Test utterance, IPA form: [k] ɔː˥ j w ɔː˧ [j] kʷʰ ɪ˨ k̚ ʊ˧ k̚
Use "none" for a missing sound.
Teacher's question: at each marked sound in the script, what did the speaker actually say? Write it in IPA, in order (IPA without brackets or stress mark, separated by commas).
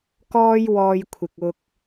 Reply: k, j